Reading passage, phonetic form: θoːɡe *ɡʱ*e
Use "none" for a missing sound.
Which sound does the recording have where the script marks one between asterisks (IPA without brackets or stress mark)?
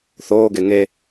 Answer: ŋ